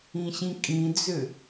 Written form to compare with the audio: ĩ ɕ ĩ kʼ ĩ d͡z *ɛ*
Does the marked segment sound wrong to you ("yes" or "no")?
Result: yes